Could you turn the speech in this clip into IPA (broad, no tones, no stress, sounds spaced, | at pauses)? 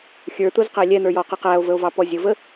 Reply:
xʲ ə˞ t̪ ʊ z q æ lʲ ɛ n̪ ə˞ j ɔ q ɪ q æ o̯ v ə o̯ v ɑ p ɔ zʲ ʊ v ə